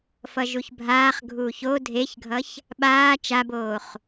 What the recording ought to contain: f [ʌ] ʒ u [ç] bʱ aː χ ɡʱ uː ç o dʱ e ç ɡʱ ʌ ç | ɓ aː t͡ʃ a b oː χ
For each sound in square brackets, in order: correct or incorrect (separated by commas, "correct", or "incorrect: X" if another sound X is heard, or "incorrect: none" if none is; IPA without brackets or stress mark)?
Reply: correct, correct